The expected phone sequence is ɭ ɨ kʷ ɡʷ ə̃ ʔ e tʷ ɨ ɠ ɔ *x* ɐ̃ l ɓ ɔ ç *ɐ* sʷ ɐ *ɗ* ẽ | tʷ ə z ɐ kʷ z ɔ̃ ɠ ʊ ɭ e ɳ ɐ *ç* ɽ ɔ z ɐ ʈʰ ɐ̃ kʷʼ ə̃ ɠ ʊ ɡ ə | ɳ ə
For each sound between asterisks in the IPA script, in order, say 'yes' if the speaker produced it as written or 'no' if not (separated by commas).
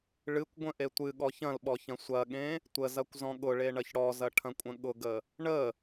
no, no, no, yes